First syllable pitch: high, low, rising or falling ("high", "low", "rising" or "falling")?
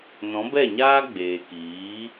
rising